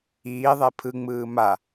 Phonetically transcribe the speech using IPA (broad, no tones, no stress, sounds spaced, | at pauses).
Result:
iː ðˤ e pʰ ɯ ŋ͡m ɯː m a